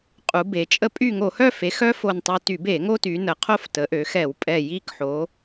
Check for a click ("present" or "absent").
absent